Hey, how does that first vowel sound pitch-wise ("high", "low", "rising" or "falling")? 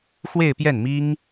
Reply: falling